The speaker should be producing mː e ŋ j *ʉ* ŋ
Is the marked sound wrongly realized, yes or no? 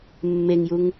yes